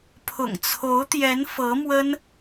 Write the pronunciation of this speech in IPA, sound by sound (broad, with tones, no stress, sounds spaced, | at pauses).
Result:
pʰ ʊ̰˨˩ ŋ t͡sʰ o˧˥ ʊ̯ t̪ j ɛ˧˥ n f ɤ˧˥ m w ə˥ n